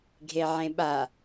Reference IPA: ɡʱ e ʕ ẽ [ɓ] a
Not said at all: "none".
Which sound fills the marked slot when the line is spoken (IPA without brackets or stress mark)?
ɓ